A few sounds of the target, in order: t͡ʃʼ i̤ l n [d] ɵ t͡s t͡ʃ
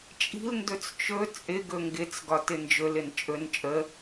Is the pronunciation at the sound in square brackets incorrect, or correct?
correct